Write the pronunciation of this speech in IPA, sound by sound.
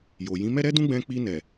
j o˨ j ĩ˨˦ m ɛ˦ ɾ ɛ˦ d ũ˦ ɡ͡b ɛ̃˧ k͡p i˧ n ɛ˨

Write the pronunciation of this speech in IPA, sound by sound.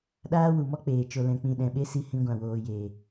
ɗ aː˦ w u˨ m ɔ˦ k͡p eː˨ t͡ʃ o˨ l ɛ̃˨ k͡p ĩ˨ ɗ ɛ̃˨ ɓ e˦ s i˧ h ĩ˧ ɡʷ ã˨ w oː˨ j eː˨

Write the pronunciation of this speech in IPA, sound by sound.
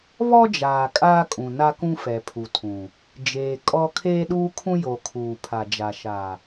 β ɔ˦ d͡ʒ aː˨ kʼ aː˦ kʼ ũ˨ n a˦ k ũ˦ f ɛ˨ pʰ u˨ tʰ ũ˨ | d͡ʒ eː˨ kʼ ɔ˦ kʰ eː˦ ɗ uː˦ kʰ ũ˦ j o˨ kʰ uː˨ pʰ a˨ d͡ʒ a˨ ʃ a˨

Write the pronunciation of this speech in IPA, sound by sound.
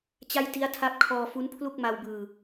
t͡ɕ a˥˩ j t i˦˥ a̯ tʰ a˦˥ p̚ kʰ ɔː˧ f u˦˥ n pʰ l u˥˩ k̚ m a˧ w b ɯː˧

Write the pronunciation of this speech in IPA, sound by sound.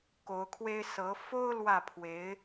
k o˧˥ ʊ̯ kʰ w e˥ ɪ̯ s ɤ˧˥ f o˥ ʊ̯ l w ä˥˩ pʰ w e˧˥ ɪ̯

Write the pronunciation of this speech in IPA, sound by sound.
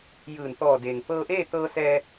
j ɯː˧˩ n t̪ ɔː˧˩ d e˩ ŋ p ɤː˧ ʔ eː˥˨ t̪ ɤː˧ s ɛː˧

